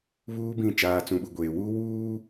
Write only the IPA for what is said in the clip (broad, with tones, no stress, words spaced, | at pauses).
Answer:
βuː˦bĩ˦˨ t͡ʃaː˨t͡sũ˨ɓu˨ ɡʷeː˨ wuː˦ wuː˦